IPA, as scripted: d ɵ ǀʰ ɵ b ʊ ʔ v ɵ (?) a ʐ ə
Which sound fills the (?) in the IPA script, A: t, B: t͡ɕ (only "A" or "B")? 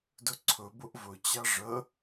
B